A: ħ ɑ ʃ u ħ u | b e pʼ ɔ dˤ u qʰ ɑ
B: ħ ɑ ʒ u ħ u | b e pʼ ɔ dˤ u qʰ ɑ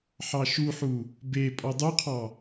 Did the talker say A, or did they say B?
A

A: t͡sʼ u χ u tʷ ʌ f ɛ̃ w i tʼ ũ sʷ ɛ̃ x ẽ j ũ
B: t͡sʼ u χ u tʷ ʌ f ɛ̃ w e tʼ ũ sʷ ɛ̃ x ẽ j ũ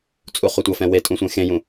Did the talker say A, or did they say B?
B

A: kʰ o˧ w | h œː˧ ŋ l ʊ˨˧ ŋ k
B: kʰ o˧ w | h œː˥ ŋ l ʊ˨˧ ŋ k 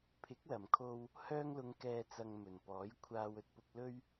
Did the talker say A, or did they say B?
A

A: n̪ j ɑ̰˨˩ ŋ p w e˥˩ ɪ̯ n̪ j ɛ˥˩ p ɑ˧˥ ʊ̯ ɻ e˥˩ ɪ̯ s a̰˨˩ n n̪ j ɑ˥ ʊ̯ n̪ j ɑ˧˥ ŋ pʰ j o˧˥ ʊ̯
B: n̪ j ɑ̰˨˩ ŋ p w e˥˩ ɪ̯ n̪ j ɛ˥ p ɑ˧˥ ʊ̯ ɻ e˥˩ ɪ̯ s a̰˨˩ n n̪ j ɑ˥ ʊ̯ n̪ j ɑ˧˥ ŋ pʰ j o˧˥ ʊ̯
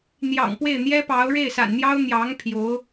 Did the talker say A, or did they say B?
B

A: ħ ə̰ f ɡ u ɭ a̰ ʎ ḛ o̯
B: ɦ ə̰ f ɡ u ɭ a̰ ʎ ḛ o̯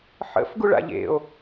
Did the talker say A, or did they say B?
A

